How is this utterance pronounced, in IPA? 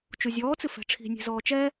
t͡ʃ u zʲ ɔː t͡s ɨ f ɛ̤ ʈ͡ʂʰ i̤ nʲ e̤ z ɔː t͡ʃ ɛ

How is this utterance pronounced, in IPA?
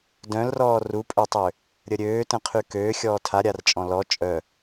d œ̃ l r ɔː r u pʼ ø tˤ ø | ɾʲ ə ɾʲ øː t ə̃ qʰ y k øː xʲ ɔː tʰ a ɾʲ a r t͡ʃʼ ɔ̃ l ɔ t͡ʃʼ œ

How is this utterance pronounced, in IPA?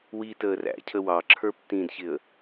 w i t əː r æ̰ cʰ ə w ɑ ǁʰ ə˞ p t ĩ d ç ɪ ə̯

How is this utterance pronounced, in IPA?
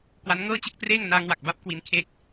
k w a˦˥ n ŋ ɤː˥˩ t͡ɕ ɯ˥˩ k̚ t r eː˥˩ ŋ n aː˧ ŋ w a˨˩ k̚ b a˦˥ p̚ k w i˦˥ n kʰ eː˥˩ k̚

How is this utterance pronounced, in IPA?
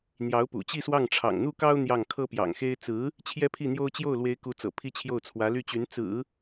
n̪ j ɑ˧˥ ʊ̯ p ṵ˨˩ t͡ɕ i˥˧ s w ɑ˥˩ ŋ ʈ͡ʂʰ ɑ̰˨˩ ŋ n̪ u˥˩ k ɑ˥ ʊ̯ n̪ j ɑ˥˩ ŋ kʰ ɤ˥ p j ɑ̰˨˩ ŋ x e˥ ɪ̯ t͡s ɹ̩˧˥ | t͡ɕʰ j ɛ˥ pʰ i˥˩ n̪ j o˥ ʊ̯ t͡ɕ j o˥˩ ʊ̯ l w e˧˥ ɪ̯ k u˧˥ t͡s ɤ̰˨˩ pʰ i˥˧ t͡ɕʰ j o˥˩ ʊ̯ t͡sʰ w ä˧˥ l y˥˩ t͡ɕ y˧˥ n t͡s ɹ̩˨˩˦

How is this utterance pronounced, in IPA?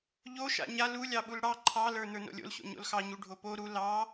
ʎ o ʃ a̰ ɲ a l u lʲ ɑ ɓ u l ɽ ɑ ǃʰ ɑ l ə˞ n ə˞ n o̰ lʲ o̰ l ɕ o̰ ɲ o̰ l x ɑ ɲ u ɖʱ o p o ɾ u l ɑ

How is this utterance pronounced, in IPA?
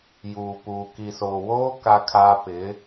j uː˨ p uː˨ k i˨ s oː˨ w oː˦ k a˦ kʰ aː˦ p ɪ˨˦

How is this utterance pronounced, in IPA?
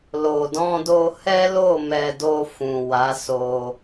l o˨ d ɔ̃˧ d o˧ h ɛ˦ l o˦˨ m ɛ˧ d o˧ f ũ˨ w a˨˦ s o˧

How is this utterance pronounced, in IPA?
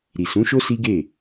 ɾ i˨ s ũ˨˦ ʃ o˦ s i˦ ɡ e˦˨

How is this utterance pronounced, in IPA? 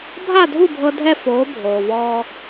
bʱ a˥˩ dʱ u˥˩ bʱ ɤ˧ dʱ ɛ˥˩ f oː˩˥ bʱ oː˩ v ɔː˧

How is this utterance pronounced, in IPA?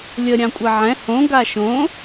lʲ ə ɾʲ ɑ̃ kʷʼ ɛ ʕ ɛ̃ h õ ɡ a ʃ õ

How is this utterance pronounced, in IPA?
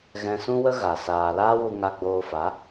ɣ ɛ̃˧ s ũ˦ w ə˦ ɣ a˨ s aː˨ l aː˦ w u˧ ŋ a˧ ɡ͡b oː˧ f a˨˦

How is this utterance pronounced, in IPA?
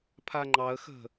pʰ a ŋ͡ǃ ɑ ə̯ x ə̤

